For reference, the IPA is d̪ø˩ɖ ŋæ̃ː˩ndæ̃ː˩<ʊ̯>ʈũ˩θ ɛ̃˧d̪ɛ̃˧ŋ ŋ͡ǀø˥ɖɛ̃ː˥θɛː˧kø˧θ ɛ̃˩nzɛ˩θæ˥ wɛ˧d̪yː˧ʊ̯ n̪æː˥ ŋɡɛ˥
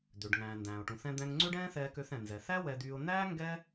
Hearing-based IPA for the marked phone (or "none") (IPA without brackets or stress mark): ʊ̯